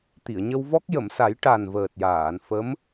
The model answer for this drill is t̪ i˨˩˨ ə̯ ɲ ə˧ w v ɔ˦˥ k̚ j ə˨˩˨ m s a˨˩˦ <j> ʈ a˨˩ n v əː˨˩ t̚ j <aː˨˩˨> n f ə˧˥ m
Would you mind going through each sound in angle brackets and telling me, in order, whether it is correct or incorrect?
correct, correct

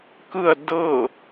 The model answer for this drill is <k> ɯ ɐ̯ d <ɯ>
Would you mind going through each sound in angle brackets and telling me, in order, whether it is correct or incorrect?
correct, incorrect

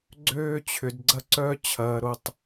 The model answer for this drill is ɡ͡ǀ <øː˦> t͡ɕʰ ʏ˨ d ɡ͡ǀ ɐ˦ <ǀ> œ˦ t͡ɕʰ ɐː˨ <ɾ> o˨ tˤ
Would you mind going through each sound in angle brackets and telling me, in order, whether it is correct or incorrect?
correct, correct, correct

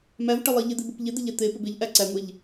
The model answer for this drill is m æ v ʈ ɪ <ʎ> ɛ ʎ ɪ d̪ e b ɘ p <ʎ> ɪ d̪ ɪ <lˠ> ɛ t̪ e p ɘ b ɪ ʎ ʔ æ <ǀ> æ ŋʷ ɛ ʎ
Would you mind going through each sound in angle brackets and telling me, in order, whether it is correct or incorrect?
incorrect, correct, incorrect, correct

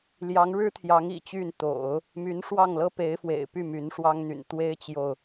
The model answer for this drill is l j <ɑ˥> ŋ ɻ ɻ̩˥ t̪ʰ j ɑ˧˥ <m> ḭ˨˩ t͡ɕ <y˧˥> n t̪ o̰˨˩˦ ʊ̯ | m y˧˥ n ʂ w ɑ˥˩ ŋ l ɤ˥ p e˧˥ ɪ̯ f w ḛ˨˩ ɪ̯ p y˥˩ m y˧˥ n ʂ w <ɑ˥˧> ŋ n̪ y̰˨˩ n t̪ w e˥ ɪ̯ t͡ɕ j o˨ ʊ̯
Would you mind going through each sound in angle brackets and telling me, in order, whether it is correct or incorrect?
incorrect, incorrect, incorrect, incorrect

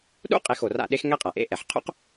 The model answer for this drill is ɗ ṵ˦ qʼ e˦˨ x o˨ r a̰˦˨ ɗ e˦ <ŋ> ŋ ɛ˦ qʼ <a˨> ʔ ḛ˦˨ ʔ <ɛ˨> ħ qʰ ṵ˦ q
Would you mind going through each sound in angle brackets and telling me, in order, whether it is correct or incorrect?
incorrect, correct, correct

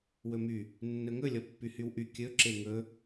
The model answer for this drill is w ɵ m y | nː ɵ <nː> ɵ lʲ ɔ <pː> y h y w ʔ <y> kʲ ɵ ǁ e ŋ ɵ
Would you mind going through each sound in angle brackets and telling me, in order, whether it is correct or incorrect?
incorrect, correct, correct

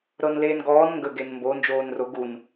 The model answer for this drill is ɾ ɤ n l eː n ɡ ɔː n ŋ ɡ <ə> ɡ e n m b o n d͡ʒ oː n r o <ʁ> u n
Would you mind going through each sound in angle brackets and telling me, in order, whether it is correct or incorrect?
correct, incorrect

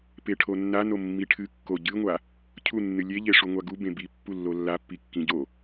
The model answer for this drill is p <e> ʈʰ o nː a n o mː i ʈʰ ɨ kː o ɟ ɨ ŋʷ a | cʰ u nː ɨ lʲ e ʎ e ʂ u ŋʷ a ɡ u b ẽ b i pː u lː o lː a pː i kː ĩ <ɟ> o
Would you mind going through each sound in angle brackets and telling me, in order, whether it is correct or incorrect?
correct, correct

